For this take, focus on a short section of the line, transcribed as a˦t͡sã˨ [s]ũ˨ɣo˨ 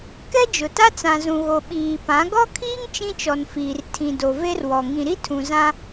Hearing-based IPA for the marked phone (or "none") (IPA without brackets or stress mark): z